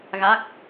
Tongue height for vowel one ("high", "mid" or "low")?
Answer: low